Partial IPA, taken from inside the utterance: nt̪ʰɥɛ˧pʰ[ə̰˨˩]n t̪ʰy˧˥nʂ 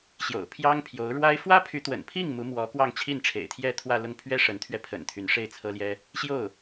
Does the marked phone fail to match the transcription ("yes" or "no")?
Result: no